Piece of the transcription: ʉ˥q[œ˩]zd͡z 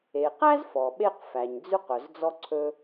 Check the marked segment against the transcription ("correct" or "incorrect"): correct